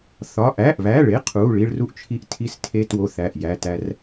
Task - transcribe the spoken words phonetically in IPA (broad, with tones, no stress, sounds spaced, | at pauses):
θ ɒ˩˧˩ ʔ æ˩˧˩ ʔ β æ˩˧˩ ɭ e˩˧˩ qʰ u˩˧˩ ɭ i˧ ɭ r u˧ ʔ t͡ʃʰ i˧ ʔ tʰ i˧ s tʰ e˧ t w o˧ θ æ˩˧˩ ʔ j æ˩˧˩ t æ˧ r